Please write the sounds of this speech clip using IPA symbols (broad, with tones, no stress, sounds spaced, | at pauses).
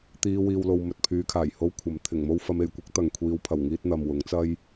t̪ iː˧ w iː˨ w l o˨ w m ɵ˨ t̚ pʰ yː˨˧ kʰ aː˨˩ j h o˧ w kʷʰ ɐ˨ m t̪ʰ ɪ˨˩ ŋ m o˧ w f ɐ˨˧ m e˨˩ j kʷ ɐ˥ k̚ t̪ ɐ˨ ŋ kʷʰ iː˨˧ w pʰ ɐ˨˩ w ŋ iː˧ t̚ n̪ ɐ˨ m w ʊ˨˥ ŋ t͡s ɐ˥ j